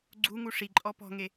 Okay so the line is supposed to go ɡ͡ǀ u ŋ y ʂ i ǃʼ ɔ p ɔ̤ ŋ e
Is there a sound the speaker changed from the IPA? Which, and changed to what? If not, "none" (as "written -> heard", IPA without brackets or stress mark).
y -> u